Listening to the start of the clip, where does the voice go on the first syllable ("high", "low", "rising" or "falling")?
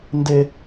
high